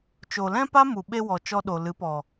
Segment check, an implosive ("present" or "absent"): present